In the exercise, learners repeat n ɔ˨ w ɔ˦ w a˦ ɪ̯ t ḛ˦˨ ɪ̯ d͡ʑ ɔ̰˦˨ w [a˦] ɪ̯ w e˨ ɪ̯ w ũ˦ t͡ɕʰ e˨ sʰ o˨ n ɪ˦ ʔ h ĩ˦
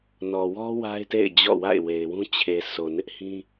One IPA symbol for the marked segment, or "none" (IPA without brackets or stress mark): a̰˦˨